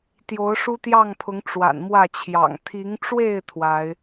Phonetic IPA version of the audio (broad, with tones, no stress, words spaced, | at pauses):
t̪jo˨˦ʊ̯ʂu˦t̪jɑ˥˨ŋpʰʊ˨˦ŋ ʈ͡ʂwa̰˨˩nmwä˥˨t͡ɕʰjɑ̰˨˩ŋ t̪ʰi˨˦ŋʈ͡ʂwe˥˨ɪ̯ t̪ʰwa˨˦ɪ̯